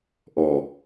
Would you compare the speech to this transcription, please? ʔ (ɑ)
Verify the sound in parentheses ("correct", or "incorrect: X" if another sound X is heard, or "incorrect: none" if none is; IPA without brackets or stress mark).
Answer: incorrect: ɔ